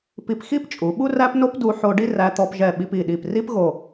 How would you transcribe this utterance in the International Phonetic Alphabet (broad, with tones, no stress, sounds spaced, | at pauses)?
p i˧ p x i˥ p t͡ʃʼ u˩˧ ɓ u˥ r æ˥ p n o˥ p d u˧ ħ o˧ ɖ i˥˧ r æ˧ t̪ ɔ˧ p ʒ ɛ˧˩ ɓ i˧ p i˧˩ ɗ i˧˩ p r i˥ p ɣ o˧˩